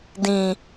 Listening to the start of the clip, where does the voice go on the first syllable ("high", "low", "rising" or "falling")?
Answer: low